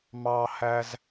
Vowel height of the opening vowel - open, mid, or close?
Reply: open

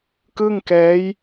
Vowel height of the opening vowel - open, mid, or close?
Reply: close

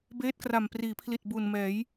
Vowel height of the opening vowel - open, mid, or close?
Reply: mid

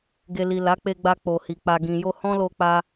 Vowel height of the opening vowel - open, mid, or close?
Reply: mid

